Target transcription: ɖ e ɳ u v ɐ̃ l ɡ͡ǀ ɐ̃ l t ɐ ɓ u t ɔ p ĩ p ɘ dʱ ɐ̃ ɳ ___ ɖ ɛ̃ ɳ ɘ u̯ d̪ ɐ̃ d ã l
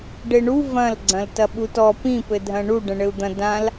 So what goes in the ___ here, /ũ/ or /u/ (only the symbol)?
u